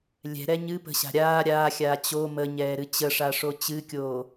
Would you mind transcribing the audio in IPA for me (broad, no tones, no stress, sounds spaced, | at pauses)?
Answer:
lʲ ɛ̤ ɾ ɛ ɲ ɨ p ə̤ ɕ a̤ ɾʲ aː ɾʲ aː xʲ aː t͡ɕ o m ə ɲ ɛː ɾ ɨ t͡ɕ ə ʂ a ʂ o t͡ɕ ɨ kʲ oː